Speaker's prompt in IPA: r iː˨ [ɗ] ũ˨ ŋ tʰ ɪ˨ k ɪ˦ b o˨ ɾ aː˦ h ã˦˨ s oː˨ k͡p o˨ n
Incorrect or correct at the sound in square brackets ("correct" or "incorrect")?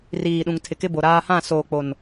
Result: correct